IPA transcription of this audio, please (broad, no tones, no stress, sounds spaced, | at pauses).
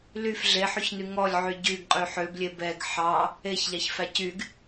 l y f ɮ e ħ y ç n y ŋ ɔ lʲ ʕ y ɟ y ɡ qʼ y ħ ø b lʲ e b ɛ ɡ ħ ɑ | e ç ʎ ɑ ç f æ c y ɡ